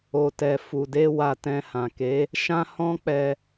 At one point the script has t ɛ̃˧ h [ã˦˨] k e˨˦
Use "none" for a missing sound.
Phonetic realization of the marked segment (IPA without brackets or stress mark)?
ã˨